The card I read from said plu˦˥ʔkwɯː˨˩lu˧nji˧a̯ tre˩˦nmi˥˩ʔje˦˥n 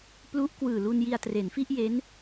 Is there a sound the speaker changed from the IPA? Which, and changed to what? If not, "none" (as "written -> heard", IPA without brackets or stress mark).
m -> f